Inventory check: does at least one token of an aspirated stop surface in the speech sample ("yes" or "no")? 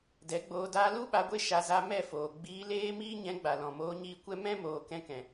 no